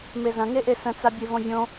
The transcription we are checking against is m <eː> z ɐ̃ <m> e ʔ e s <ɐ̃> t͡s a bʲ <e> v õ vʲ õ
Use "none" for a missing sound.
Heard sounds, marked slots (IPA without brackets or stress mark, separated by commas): e, ŋ, ə̃, e